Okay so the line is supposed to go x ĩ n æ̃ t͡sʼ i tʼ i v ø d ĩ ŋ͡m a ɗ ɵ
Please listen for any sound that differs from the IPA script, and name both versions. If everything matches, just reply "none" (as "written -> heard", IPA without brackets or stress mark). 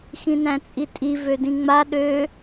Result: ɵ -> ø